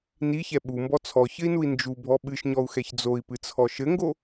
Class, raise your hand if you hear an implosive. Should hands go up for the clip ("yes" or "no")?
yes